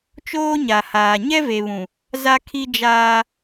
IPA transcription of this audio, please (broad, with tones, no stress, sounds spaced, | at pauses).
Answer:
t͡ʃ oː˦ ɲ a˨ h aː˨ ɲ ɛ˦ v e˨ β ũ˨ | z a˦ kʰ i˦ d͡ʒ aː˦